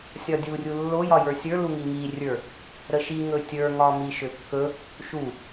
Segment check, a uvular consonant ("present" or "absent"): absent